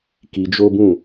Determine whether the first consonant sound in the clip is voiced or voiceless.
voiceless